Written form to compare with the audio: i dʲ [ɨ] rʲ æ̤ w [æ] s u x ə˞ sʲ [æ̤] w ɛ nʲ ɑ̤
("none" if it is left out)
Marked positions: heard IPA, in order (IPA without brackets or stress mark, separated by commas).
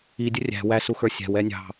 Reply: ə, æ, æ̤